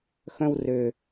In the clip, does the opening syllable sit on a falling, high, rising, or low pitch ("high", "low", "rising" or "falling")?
high